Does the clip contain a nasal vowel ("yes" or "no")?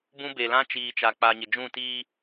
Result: yes